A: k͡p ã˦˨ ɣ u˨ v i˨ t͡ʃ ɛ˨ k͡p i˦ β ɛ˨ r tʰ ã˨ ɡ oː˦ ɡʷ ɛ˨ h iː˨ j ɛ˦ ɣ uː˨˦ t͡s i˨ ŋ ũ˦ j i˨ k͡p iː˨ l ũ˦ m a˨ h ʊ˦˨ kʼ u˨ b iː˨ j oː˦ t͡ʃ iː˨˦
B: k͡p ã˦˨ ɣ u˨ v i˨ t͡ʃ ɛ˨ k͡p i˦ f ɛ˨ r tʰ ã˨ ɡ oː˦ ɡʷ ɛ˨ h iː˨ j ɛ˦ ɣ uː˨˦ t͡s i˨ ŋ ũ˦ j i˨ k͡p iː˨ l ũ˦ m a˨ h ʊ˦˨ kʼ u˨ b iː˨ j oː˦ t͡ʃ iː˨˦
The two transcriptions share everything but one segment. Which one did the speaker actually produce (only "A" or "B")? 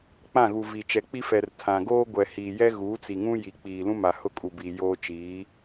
B